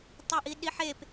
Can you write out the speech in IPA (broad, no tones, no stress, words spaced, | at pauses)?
tˤə˞ʔiɗiħep